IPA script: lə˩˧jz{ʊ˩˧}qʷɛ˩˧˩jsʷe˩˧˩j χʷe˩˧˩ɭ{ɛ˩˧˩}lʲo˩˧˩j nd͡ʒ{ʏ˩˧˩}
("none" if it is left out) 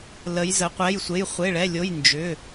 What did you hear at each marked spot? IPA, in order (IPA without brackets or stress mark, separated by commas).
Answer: ə˩˧, ɛ˩˧˩, ʏ˩˧˩